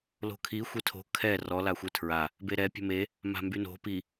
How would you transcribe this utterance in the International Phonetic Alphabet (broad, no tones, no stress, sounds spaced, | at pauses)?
l o̤ kʰ i xʷ e tʰ o̤ kʰ ɛ r ɔ l a xʷ e tʰ ɹ a | b e ɾ ɛ pʲ ə̤ m e | m a̤ m b y n o̤ p i